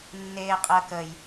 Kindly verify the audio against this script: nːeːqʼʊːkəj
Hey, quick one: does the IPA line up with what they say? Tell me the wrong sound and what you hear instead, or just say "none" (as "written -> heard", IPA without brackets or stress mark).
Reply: ʊː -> əː